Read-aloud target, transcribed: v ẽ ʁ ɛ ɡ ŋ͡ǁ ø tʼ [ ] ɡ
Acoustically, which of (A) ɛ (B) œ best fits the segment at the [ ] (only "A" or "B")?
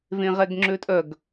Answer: B